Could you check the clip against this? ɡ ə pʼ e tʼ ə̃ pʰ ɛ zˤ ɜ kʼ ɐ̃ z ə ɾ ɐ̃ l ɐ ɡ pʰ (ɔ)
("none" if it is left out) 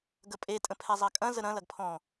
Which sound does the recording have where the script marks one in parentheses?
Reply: ɔ̃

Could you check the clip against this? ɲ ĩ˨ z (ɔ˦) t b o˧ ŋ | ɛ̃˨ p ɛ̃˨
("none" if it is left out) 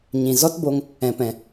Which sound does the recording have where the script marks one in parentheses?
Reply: ɔ˦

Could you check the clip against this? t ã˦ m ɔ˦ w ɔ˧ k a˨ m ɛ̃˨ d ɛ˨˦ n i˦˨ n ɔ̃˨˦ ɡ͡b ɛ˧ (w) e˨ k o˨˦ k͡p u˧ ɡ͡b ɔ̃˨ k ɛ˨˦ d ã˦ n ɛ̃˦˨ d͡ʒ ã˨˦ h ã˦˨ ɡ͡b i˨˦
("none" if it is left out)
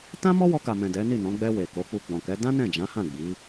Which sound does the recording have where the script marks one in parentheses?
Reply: w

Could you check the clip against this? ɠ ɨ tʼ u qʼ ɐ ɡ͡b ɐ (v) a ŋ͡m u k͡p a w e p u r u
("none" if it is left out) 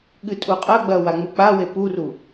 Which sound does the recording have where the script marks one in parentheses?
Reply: w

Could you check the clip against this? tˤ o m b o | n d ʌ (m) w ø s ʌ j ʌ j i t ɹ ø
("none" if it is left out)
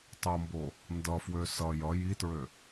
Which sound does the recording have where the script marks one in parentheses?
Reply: f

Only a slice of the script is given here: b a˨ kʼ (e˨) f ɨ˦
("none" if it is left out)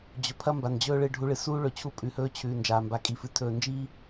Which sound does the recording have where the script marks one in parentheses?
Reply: i˨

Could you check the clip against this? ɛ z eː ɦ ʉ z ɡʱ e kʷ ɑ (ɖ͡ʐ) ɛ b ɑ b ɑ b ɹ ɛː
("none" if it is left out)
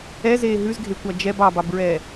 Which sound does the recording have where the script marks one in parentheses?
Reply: d͡ʒ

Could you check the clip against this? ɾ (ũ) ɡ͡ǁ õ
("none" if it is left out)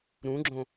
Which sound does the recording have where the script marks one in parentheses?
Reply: ũ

